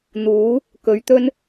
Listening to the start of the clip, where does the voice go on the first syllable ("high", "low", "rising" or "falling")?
rising